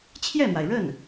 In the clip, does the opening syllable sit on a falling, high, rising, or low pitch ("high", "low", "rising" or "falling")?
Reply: falling